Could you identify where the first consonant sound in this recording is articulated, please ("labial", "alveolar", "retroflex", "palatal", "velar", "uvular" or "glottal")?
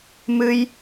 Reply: labial